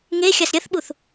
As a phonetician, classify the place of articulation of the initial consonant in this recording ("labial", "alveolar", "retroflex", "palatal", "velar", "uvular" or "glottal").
velar